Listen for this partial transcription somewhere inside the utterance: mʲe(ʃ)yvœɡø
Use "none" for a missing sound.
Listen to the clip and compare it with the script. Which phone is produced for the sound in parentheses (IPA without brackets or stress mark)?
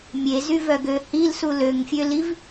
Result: z